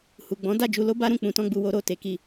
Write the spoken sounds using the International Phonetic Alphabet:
h u˨ ɡ͡b ɔ̃˨˦ d a˦˨ d͡ʒ u˧ l o˦ b a˦ ɾ ũ˦˨ k͡p ũ˧ t ɔ̃˦ ɡ͡b u˧ w o˦ ɾ o˦˨ t e˧ k i˧

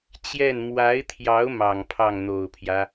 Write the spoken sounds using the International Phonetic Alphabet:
t͡ɕ j ɛ˥˩ n m w a˧˥ ɪ̯ t̪ʰ j ɑ˧˥ ʊ̯ m ɑ˨˩ ŋ pʰ ɑ˥˩ ŋ n̪ o˨˩ ʊ̯ pʰ j ä˦

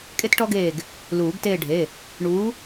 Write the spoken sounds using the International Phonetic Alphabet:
kʼ e˥ t ʈ ɔ˥ ɡ eː˦˨ ɡ | l uː˨˩˦ ɡ t eː˦˨ ɖʱ e˩˧˩ | ɳ uː˨˥

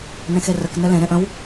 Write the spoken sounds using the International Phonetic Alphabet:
n ẽ x e r ə k n ɘ l ẽ ɾ ẽ ʔ ə̃ w

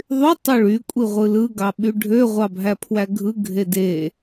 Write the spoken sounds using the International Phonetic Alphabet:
ðˤ y tˤ ø ɭ y kʷʼ i ʁʷ ɯ l ɯ ɡ ɑ ɓ y ɖʱ ø ʁʷ ɑ bʱ æ pʰ w æ ɡʱ ɯ ɡʱ e d e

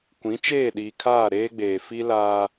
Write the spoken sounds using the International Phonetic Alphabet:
kʷ ĩ˨˦ t͡ʃ eː˦˨ ɗ iː˨ kʰ aː˦˨ ɾ eː˦ ɡ͡b eː˨ f i˦ l aː˦

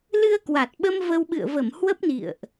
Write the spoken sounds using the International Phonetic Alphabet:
l ɨ˧ ə̯ k w a˨˩ t̚ ɓ ə˧ m v ə˧ w ɓ ɨ̰˧˨ ə̯ v ə˧˩ m h w ə˦˥ p̚ n ḭ˧˨ ə̯ ʔ

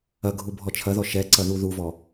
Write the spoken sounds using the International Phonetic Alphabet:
ɐ ɡʱ u bʱ ɔ t͡ʃʰ ɐ ð ɔ ʃ ɛ ǀ ɐ ð u ð u v ɔ

